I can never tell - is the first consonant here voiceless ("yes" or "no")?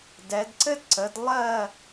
no